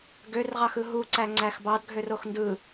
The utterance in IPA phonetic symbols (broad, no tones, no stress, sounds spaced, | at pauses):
ɡ ø r ʁ ɑ x ɯ ɦ u ǀ æ ŋ͡ǀ æ x b ɑ d ɡʱ ø r o x n d ɯ